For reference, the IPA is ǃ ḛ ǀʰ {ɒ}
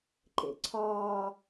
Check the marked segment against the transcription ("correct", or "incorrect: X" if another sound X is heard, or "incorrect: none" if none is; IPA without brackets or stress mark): incorrect: ɒː